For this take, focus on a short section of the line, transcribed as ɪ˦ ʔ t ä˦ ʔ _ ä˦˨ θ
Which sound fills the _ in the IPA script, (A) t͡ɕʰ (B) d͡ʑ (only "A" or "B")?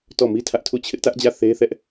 B